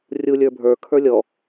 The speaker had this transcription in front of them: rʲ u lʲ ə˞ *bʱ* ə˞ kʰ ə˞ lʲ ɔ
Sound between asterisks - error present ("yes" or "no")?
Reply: no